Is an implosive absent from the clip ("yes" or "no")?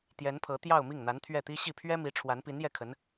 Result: yes